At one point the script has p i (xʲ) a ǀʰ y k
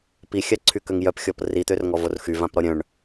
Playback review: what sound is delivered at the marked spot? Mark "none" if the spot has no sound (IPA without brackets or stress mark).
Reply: xʲ